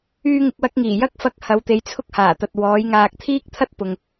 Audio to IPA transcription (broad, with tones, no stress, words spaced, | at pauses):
yː˧ŋɪ˨k̚wɐ˧k̚ŋiː˨˩ jɐ˥k̚ fɐ˧k̚ hɐ˨˧wt̪e˨˧jt͡sʰʊ˥k̚ haː˨˩t̪ɐ˨t̚ wɔː˨˥jŋaː˧k̚ t̪ʰiː˥k̚t̪ʰɐ˥t̚pʊ˨ŋ